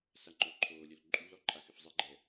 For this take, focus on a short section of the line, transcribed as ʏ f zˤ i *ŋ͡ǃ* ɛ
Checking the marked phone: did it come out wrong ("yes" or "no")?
yes